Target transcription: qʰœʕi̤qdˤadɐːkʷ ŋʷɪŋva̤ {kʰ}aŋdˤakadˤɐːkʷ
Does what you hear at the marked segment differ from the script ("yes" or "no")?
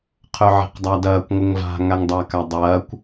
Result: yes